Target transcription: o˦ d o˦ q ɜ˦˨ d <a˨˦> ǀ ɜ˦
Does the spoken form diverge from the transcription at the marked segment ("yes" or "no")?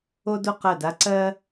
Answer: yes